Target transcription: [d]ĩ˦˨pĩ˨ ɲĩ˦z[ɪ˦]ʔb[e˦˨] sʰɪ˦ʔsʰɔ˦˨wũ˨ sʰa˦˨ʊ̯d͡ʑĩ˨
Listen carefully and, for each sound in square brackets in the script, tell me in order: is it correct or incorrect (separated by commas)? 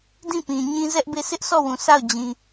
correct, incorrect, correct